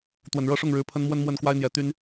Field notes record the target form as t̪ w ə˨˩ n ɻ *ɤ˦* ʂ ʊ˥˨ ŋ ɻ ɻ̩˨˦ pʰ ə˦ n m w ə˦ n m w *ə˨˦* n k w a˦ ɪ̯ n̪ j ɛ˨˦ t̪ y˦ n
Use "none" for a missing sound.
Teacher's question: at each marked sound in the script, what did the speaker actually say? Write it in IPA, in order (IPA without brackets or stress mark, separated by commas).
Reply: ɤ˥˨, ə˥˨